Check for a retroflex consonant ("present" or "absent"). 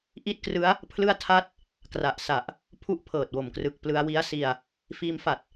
absent